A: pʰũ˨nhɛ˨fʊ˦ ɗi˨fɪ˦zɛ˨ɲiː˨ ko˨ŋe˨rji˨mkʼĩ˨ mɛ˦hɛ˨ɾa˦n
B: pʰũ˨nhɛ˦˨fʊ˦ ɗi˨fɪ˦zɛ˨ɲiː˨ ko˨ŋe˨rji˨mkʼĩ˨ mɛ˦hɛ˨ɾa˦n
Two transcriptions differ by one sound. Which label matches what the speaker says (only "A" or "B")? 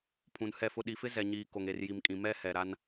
B